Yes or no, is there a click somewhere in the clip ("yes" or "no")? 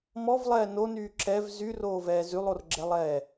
yes